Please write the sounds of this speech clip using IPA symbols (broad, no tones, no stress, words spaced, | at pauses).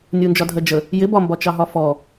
nʲund͡ʒɒdʱɜd͡ʒə | jɪbɒmbɒ t͡ʃɑɦɒfɔ